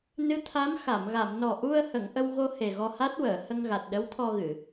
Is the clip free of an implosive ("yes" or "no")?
no